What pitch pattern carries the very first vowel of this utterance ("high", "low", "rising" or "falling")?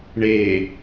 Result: low